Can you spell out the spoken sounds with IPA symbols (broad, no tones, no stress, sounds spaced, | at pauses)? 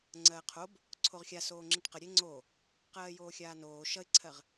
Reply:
ŋ͡ǀ ɜː qʰ o b | ǀʰ o ʁ xʲ a s oː ŋ͡ǁ i ʈ q ə ɾʲ e ŋ͡ǀ o | q ɜː j oː xʲ aː n oː ʃ ʌ ɪ̯ ǀʰ ɜ ʁ